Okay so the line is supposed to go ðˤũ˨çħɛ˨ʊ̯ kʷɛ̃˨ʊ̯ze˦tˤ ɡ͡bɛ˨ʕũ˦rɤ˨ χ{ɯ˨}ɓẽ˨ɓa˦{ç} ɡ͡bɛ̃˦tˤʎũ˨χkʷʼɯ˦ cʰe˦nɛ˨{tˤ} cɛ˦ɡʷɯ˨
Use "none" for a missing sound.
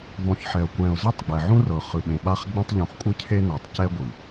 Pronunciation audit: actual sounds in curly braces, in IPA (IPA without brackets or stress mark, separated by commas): ɯ˨, χ, tˤ